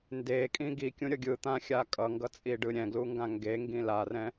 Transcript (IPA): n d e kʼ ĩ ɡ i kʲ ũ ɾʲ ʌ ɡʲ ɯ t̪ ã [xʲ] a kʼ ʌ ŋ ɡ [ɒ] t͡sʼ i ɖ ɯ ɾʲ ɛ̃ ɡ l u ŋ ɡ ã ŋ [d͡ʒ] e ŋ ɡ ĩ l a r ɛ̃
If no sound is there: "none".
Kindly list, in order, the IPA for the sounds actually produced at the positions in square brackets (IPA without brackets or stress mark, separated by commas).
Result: xʲ, ʌ, ɡ